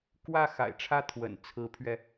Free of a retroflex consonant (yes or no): no